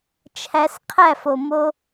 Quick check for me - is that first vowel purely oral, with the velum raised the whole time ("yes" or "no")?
yes